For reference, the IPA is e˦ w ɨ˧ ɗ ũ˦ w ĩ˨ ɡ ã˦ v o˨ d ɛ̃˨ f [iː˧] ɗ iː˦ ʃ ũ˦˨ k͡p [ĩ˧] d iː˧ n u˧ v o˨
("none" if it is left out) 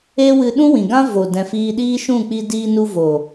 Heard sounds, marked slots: iː˧, i˧

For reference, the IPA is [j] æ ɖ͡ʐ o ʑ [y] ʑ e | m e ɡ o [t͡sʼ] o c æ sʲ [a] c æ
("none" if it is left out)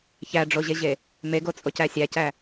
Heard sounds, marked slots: ç, e, t͡sʼ, æ

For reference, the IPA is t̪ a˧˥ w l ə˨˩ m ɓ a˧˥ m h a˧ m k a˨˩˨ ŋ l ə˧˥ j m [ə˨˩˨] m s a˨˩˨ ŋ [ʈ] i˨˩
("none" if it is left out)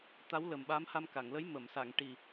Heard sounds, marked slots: ə˨˩˨, ʈ

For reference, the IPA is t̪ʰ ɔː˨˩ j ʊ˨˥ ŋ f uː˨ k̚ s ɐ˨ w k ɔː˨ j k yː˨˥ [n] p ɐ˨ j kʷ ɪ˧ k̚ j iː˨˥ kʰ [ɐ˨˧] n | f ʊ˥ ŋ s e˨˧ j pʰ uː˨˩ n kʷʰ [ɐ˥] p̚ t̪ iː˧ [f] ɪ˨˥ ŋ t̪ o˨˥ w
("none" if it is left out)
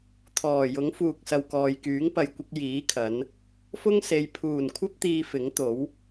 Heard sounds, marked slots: ŋ, ɐ˨˧, ɐ˥, f

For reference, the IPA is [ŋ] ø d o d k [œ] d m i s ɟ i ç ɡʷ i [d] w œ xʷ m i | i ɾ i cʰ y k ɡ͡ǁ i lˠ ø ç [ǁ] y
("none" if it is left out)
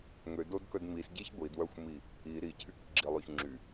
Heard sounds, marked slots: ŋ, œ, d, ŋ͡ǁ

